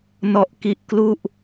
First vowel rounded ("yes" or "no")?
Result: yes